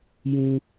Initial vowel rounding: rounded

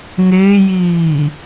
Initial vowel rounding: unrounded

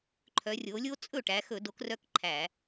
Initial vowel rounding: rounded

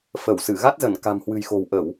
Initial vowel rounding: unrounded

